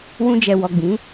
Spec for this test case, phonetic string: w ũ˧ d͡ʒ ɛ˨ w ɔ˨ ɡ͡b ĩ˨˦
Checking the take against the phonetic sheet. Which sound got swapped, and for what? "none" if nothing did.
none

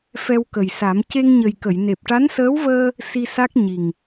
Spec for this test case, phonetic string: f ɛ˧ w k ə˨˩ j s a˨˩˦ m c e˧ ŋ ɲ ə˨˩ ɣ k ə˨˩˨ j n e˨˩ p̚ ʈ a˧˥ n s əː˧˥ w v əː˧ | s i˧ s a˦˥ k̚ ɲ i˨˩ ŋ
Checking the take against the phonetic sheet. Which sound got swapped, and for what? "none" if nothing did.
ɣ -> j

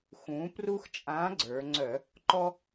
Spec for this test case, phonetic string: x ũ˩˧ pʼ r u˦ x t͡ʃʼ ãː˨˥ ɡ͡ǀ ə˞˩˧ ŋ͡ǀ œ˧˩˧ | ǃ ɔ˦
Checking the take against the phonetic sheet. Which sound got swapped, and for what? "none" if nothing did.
pʼ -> p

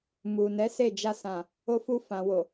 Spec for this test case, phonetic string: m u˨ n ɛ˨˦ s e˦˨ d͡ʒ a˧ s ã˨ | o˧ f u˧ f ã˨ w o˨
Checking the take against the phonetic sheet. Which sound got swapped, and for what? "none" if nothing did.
none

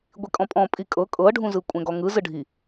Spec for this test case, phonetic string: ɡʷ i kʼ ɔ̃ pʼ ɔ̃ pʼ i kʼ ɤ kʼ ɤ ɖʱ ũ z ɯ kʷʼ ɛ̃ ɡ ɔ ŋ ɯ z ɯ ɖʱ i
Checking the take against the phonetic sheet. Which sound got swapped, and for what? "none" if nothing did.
none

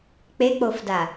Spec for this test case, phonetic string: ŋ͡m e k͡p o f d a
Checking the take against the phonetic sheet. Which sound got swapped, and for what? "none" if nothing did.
ŋ͡m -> k͡p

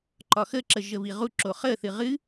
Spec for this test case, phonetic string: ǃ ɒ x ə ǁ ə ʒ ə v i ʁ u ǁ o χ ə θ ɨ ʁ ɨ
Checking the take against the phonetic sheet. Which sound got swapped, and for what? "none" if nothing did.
none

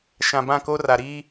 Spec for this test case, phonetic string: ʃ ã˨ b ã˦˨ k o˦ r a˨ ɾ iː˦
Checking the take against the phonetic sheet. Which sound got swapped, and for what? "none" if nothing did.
none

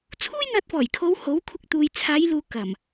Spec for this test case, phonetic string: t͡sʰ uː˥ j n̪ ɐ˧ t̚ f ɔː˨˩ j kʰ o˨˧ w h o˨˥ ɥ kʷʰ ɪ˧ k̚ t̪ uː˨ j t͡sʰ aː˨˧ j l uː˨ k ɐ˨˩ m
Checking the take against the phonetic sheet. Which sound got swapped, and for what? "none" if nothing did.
ɥ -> w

